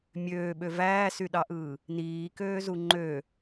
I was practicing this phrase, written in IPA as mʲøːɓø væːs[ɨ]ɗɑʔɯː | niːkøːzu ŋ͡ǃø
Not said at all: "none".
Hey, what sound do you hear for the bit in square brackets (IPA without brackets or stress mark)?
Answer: y